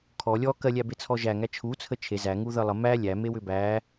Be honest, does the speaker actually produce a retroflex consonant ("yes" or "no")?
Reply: no